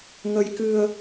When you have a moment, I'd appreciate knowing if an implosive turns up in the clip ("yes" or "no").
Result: no